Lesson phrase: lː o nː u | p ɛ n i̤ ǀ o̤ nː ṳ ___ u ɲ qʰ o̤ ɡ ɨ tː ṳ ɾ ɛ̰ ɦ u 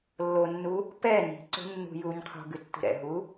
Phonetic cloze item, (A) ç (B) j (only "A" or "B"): B